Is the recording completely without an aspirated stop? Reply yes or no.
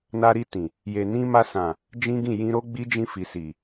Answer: yes